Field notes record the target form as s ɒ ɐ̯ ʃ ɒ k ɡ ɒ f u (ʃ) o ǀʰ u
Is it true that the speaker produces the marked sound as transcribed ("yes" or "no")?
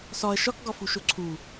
yes